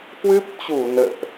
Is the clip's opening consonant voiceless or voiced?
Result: voiceless